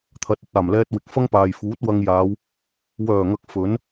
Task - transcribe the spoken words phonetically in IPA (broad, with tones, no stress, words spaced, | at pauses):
t̪ʰɐ˨t̚ɵ˧t̚ aː˨˩mlɛː˧t̚ wɪ˨k̚fɐ˥ŋpaː˨j fuː˨˥t̚wɐ˧ŋjaː˨˧w | wœː˨˩ŋɐ˨k̚ fɵ˨˥n